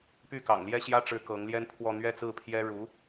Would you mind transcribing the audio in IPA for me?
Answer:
p y˥˩ k ɑ̰˨˩ ŋ l j ɛ˥˩ ɕ j ä˥ ʈ͡ʂ ɻ̩˧˥ k ɤ˧˥ ŋ l j ɛ˥ n pʰ w ɔ˥˧ n̪ ɥ ɛ˥˧ t͡s ɹ̩˥˩ pʰ j ɛ˥ ɻ u˧˥

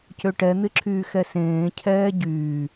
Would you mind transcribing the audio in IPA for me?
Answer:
c ø ʈ ɛ n̪ ɪ ǁʰ yː x ɛ s ẽː cʰ ɛː ɟ yː

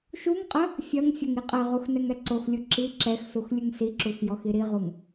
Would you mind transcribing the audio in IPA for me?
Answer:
ʃ u ŋ qʼ ɐ | fʲ ɐ ŋ fʲ ɐ ŋ i qʼ ɐ ʁ u x n ɛ ŋ ɛ ǀ o x lʲ u ǁ i ǁ ɛ x s u x lʲ ɨ ŋ s i ǁ u x j ɔ x i ɾ i ʁ u ŋ

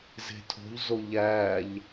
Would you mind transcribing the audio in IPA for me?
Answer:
z e̤ tʰ o̤ ʎ z o ʎ æ ʎ

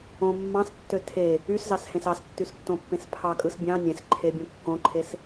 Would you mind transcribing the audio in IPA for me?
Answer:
õ mː ɑ̃ s tː ø tʰ e | y s z ɑ s h ẽ s ɑ s tː y s tː õ pː ẽ s pʰ ɑ kʼ ɯ s bʲ ɑ̃ nʲ ẽ s ǃʰ e bʲ õ kː õ ǃʰ e s

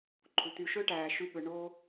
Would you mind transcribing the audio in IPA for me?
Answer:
ǃʰ u˨ t̪ y˧ ʃ ø˦ ʈ æː˨ ʃ y˧ ɠ ɯ˨ ɳ o˧

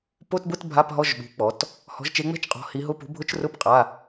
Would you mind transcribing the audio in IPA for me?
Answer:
p o˧˥˧ t b ʊ˧˥˧ t bʱ a˧˥˧ p ɦ ɔ˧˥˧ ʒ ɓ ṳ˨˦ k͡p ɔ˨˦ t | h ɔ̤˨˦ ʒ t͡ʃ e˨˦ ŋ͡m ɛ̤˧˥˧ t͡ʃ qʼ ɔ̤˨˦ h i˨˦ ɦ ʊ˧˥˧ p ṳ˨˦ bʱ ʊ˧˥˧ t͡ʃ r ʊ˧˥˧ p qʼ a˧˥˧

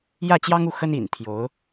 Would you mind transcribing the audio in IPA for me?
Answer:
j ä˥˩ t͡ɕ j ɑ˥ ŋ u˥˩ x ə˥ n ḭ˨˩ n t̪ʰ j o˧˥ ʊ̯

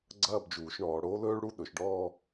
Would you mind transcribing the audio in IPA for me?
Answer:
ɡ͡ǀ ɐː˥˧ b d͡ʒ uː˩˧ ʃ ɳ ɔː˩˧ ɽ oː˥ l ɵː˥ ɭ ɽ u˥˧ ɗ ɵ˩˧ ʃ ɖ ɔː˥˧

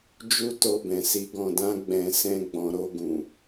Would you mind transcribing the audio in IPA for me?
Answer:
d͡ʒ u˦ t o˧ b ɛ̃˨ s i˨˦ ɡ ɔ̃˧ d ã˦ ɡ͡b ɛ̃˧ s ɛ̃˦ ɡ͡b ɔ̃˧ ɾ o˧ ɡ ũ˨

